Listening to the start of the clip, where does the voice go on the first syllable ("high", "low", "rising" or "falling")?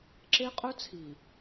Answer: high